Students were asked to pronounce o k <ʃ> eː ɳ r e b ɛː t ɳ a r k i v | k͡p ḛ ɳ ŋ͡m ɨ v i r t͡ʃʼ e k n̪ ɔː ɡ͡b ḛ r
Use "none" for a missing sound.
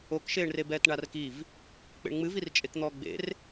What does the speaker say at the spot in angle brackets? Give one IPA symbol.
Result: ʃ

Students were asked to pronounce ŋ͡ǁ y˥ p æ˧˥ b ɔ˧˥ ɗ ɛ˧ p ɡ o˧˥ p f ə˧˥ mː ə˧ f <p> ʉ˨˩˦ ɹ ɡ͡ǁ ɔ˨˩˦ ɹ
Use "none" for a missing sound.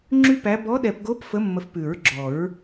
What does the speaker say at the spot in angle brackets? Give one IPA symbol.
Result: p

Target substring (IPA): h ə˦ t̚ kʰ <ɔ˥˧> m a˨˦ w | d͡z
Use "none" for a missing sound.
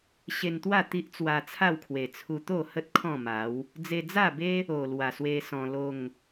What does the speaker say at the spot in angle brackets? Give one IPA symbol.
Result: ɔ̃˥˧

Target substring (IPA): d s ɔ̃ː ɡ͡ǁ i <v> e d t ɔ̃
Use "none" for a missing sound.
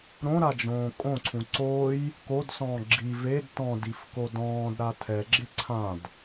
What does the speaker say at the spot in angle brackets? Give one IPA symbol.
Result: v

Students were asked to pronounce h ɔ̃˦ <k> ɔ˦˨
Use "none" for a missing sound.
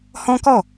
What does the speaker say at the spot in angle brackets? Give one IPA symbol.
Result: k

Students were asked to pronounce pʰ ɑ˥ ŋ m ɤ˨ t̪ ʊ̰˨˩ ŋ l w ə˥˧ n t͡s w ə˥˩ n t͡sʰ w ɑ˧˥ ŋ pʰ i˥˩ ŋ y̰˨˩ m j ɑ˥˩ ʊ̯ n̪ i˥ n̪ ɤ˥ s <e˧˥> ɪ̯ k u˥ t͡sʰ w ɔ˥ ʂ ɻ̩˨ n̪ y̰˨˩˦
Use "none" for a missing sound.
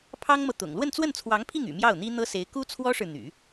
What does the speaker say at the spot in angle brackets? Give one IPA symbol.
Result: e˧˥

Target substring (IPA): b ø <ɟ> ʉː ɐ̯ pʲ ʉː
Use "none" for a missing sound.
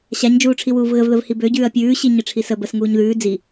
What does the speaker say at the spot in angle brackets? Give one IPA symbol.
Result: ɟ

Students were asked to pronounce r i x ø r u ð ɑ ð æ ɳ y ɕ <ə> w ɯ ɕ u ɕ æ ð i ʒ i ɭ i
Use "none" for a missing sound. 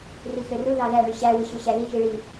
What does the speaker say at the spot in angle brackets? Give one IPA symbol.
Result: æ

